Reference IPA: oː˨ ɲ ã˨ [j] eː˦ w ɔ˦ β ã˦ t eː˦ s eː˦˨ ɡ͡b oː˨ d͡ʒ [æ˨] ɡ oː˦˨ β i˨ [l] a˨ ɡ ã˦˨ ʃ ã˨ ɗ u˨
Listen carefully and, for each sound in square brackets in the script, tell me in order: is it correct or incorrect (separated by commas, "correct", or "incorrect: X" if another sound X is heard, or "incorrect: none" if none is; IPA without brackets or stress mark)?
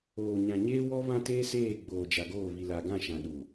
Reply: incorrect: ɲ, incorrect: a˨, correct